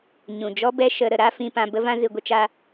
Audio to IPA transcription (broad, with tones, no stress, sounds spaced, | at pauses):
ɲ ũ˨ d͡ʒ ɔ˦ b ɛ˦ ʃ ə˧ ɾ ə˧ ɾ a˦ f ĩ˧ p ã˧ b ə˧ v ã˧ z ɨ˧ ɡʷ ə˦ t͡ʃ a˦